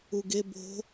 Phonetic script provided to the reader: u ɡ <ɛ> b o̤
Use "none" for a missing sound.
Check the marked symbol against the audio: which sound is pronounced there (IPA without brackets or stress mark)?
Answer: e